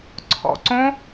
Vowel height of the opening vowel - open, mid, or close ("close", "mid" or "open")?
mid